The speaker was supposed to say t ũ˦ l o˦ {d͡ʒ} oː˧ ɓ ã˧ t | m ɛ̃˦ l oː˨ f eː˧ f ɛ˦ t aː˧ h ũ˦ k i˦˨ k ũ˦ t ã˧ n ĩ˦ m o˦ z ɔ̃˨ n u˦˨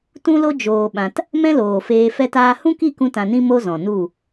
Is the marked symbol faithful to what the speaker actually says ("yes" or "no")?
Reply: yes